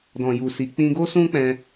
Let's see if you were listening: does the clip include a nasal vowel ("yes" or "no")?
yes